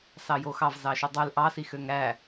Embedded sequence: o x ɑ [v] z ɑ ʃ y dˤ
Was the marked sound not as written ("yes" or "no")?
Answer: no